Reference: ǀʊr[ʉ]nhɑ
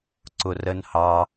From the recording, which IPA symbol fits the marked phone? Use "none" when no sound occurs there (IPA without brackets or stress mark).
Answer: ə